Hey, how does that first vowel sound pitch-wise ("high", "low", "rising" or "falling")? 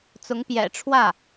rising